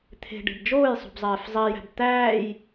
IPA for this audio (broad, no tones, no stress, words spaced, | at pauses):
t̪ʰe̤ɖe̤b d͡ʒoːjsˤṳbzˤeːf zˤijæ̤b t̪æːj